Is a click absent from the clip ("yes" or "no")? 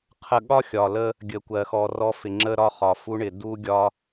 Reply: no